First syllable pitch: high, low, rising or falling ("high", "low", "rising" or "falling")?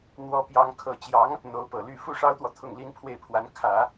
high